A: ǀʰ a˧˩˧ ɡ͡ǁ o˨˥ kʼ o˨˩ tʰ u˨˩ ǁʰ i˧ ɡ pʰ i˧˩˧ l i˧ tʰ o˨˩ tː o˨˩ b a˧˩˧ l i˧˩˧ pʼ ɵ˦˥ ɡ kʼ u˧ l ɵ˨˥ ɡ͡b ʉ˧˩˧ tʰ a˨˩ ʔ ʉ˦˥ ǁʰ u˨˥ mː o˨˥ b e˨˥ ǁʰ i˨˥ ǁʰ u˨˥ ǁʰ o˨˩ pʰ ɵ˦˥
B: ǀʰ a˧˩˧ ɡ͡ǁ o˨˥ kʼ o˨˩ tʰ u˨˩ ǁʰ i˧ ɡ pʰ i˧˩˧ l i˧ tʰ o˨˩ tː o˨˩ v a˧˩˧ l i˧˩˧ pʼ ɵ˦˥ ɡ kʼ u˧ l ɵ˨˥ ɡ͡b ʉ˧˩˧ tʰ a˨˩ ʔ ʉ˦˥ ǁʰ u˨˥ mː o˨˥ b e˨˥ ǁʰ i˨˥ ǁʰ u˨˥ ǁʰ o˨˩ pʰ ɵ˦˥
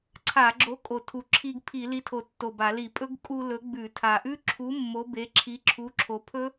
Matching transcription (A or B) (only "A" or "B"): A